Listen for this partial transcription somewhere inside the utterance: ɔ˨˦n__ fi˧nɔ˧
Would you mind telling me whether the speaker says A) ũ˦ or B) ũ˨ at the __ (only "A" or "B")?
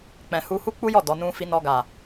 A